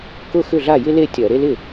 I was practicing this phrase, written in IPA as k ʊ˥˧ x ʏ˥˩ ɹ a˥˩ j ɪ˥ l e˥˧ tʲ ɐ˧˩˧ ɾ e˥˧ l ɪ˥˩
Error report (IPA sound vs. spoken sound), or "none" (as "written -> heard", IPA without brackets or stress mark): ɹ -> ɮ